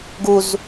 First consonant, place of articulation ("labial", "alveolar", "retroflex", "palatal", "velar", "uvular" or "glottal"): velar